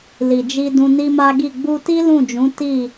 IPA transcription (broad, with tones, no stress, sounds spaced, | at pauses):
l i˨ d͡ʒ i˧ d ũ˧ n i˦ m a˦ ɡ i˦˨ ɡ͡b u˧ t i˦ l ũ˦˨ d͡ʒ ũ˨˦ t i˦˨